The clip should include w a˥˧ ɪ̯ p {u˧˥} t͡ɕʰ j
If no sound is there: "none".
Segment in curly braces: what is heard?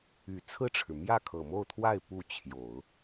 u˥˩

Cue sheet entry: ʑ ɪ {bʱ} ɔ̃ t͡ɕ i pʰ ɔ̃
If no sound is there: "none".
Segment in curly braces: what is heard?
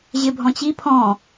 bʱ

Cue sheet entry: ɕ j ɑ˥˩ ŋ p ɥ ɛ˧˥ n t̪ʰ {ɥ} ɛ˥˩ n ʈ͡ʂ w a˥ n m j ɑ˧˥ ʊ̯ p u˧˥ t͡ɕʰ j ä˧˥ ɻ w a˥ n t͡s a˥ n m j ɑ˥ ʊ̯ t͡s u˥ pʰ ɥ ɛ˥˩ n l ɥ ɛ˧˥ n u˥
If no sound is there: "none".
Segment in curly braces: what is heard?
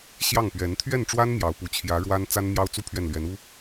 ɥ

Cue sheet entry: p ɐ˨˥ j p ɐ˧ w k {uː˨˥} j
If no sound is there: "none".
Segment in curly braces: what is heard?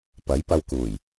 uː˨˩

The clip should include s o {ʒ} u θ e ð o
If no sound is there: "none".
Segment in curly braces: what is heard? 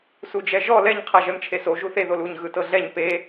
ʒ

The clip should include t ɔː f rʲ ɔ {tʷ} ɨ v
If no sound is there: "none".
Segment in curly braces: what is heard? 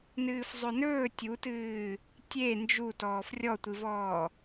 tʷ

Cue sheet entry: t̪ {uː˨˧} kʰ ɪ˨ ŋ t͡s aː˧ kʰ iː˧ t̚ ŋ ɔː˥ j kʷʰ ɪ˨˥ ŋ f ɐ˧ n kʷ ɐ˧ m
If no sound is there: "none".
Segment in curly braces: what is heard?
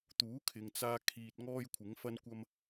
uː˨˥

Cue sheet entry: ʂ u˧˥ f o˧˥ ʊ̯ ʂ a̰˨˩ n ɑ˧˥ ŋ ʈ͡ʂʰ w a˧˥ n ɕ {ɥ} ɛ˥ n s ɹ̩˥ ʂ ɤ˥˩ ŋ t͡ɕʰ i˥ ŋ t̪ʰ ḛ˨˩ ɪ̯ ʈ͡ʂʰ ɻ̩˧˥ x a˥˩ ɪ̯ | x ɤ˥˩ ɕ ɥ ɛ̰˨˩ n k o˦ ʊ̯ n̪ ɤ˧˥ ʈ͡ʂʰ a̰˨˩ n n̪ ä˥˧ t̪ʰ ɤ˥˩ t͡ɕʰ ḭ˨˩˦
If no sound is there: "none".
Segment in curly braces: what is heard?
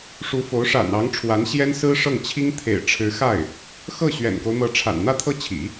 j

